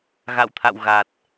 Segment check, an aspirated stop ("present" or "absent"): present